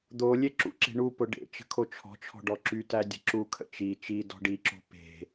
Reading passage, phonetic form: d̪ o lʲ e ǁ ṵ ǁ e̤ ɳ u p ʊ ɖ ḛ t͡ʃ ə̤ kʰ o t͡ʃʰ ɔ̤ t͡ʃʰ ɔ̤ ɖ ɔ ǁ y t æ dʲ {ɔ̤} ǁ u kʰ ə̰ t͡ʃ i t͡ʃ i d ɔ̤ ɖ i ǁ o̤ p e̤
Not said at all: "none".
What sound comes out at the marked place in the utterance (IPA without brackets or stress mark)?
ə̤